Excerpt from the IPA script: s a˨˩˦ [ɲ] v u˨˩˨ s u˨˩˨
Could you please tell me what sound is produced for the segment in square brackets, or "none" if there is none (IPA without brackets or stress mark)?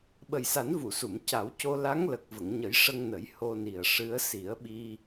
n